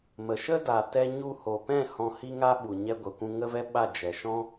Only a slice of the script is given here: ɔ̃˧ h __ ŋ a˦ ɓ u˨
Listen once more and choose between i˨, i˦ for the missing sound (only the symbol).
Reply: i˦